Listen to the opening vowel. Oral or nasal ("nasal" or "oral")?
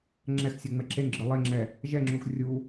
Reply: oral